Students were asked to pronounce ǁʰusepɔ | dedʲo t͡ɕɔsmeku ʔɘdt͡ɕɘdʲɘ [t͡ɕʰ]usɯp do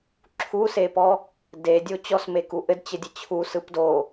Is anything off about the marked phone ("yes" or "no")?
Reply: no